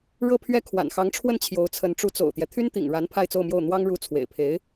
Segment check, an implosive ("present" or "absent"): absent